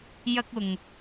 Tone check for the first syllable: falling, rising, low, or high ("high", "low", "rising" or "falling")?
high